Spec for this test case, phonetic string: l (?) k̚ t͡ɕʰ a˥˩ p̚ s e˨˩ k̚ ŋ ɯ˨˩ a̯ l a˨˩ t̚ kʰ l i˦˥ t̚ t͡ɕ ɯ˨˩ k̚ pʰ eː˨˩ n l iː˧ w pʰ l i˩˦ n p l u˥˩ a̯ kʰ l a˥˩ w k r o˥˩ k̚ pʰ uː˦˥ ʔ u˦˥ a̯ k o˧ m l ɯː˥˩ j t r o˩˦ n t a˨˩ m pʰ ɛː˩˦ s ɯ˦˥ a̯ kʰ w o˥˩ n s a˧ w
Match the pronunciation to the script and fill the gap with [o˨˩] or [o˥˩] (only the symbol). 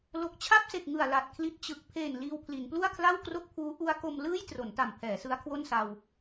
o˨˩